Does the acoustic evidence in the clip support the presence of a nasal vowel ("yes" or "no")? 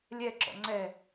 no